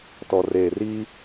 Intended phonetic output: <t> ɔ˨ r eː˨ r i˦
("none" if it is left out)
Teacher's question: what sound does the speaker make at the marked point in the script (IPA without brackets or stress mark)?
t